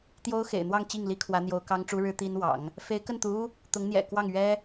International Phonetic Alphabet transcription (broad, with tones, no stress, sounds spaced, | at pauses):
t̪ j o˥ ʊ̯ x ḛ˨˩ ɪ̯ n̪ w ɑ˥˧ ŋ t͡ɕ i˥˩ ŋ l i˥ kʰ w ä˧˥ n̪ j o˧˥ ʊ̯ k ɑ˥ ŋ ʈ͡ʂ u˥ ɻ ɻ̩˥ t̪ i˥ n w ɑ̰˨˩˦ ŋ | f e˧˥ ɪ̯ k ə˥˩ n t̪ u˧˥ u˥ | t̪ ʊ˧˥ ŋ n̪ j ɛ̰˨˩ k w ɑ˥˩ ŋ ɥ ɛ˥